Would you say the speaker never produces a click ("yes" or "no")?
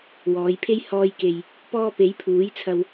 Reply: yes